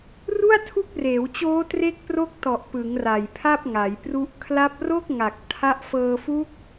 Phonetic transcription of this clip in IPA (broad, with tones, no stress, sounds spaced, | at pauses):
r u˥˩ a̯ tʰ u˦˥ k̚ r eː˩˦ w t͡ɕ oː˦˥ t r e˦˥ k̚ p r o˦˥ k̚ t ɔ˨˩ ʔ p ɯ˩˦ ŋ r a˨˩ j pʰ a˥˩ p̚ ŋ a˩˦ j p r u˦˥ ʔ kʰ l a˦˥ p̚ r o˥˩ k̚ ŋ a˨˩ k̚ tʰ a˥˩ ʔ f ɤː˧ f u˦˥ k̚